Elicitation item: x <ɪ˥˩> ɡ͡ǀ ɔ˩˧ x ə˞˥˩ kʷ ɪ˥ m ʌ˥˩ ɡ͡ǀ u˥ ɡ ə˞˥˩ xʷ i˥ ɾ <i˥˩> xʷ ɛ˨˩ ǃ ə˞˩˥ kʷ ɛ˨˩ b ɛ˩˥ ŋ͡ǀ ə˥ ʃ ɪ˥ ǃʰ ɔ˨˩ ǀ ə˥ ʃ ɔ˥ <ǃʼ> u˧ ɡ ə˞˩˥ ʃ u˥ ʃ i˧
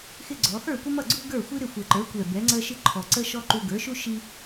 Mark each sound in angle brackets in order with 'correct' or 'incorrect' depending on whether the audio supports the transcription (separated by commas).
incorrect, incorrect, incorrect